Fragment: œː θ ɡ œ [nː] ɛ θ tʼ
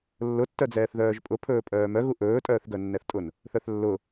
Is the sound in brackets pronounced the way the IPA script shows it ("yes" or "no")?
yes